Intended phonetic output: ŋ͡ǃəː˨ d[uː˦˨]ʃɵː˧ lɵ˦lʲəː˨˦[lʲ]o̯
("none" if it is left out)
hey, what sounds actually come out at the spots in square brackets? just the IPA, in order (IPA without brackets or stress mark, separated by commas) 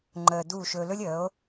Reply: uː˦˨, none